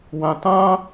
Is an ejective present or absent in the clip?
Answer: absent